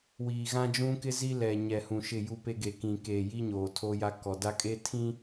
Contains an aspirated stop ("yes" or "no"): yes